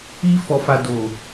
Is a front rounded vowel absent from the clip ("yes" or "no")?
yes